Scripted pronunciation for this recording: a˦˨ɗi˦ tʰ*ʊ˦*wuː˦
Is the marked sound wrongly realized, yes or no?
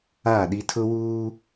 no